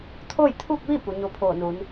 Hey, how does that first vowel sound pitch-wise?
falling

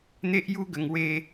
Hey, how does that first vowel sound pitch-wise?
high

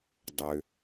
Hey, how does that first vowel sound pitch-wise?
low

